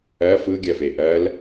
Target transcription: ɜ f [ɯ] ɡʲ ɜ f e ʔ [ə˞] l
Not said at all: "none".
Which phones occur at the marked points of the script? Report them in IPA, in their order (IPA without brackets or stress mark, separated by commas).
ɯ, ɜ